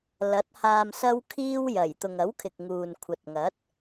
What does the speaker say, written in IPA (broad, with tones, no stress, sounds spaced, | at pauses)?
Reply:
l ɐ˨˥ t̚ h aː˧ m s ɐ˥ w kʰ iː˥ w j ɐ˨˩ j t̪ ʊ˨ ŋ ɐ˨˥ w kʰ ɪ˨ k̚ ŋ uː˨ n kʷʰ ɐ˨ t̚ ŋ ɐ˨˥ t̚